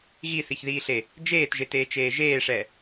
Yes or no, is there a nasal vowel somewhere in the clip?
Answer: no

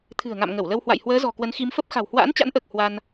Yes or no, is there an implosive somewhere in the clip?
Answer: no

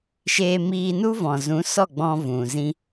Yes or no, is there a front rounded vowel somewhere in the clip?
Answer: no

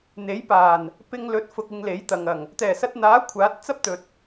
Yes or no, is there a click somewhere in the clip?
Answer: no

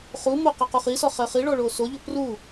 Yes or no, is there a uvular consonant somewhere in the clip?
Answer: yes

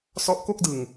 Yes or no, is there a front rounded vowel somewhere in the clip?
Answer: no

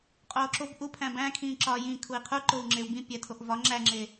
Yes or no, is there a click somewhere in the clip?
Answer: yes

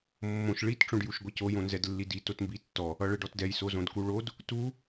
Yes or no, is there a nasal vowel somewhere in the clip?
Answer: yes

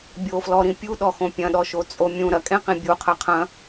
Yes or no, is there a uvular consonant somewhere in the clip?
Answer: yes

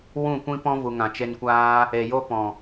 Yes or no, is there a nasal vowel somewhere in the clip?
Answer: yes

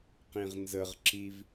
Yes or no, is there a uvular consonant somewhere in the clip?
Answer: yes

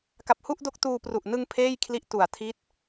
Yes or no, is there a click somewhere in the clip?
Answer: no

